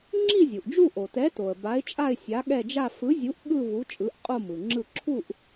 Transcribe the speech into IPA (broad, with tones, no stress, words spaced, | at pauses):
ŋ͡ǁi˥˧zʲu˩ʔd͡ʒu˥˧ ʔo˩tɛ˨˥to˩ə̯ ba˨˥ɪ̯t͡ʃʼa˥˧ɪ̯ sʲa˨˥ɠɛ˥˧d͡ʒa˥˧ fɯ˨˥zʲu˨˥ʔ ɠɯ˥˧vu˨˥ t͡ʃʼɯ˨˥ʔqʼo˥˧mɯ˩ŋ͡ǁɯ˥˧ ǁʰu˥˧ʔ